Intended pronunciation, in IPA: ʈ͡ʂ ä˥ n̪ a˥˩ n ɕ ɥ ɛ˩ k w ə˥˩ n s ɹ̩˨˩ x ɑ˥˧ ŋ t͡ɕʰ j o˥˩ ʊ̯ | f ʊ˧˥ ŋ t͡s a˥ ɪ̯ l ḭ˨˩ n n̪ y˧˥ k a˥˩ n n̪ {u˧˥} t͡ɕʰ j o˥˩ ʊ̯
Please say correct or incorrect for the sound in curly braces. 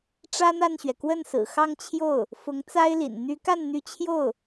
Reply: incorrect